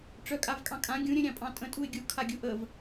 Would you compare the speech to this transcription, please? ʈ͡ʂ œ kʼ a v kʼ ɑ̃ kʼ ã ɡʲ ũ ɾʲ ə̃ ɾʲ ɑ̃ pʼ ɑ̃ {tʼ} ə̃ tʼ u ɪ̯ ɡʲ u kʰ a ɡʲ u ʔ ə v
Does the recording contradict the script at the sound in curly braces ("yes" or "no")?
no